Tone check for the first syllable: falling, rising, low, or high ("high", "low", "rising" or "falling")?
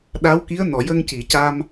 rising